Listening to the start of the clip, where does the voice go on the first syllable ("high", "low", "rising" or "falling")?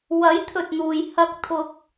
rising